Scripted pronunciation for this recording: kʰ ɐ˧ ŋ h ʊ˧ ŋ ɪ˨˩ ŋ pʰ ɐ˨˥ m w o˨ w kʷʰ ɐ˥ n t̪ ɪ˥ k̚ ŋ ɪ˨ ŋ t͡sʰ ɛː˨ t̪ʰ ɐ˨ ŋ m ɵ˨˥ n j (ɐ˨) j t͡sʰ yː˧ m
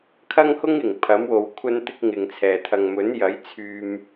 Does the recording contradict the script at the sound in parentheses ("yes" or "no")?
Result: yes